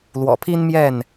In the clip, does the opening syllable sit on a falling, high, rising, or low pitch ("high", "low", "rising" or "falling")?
low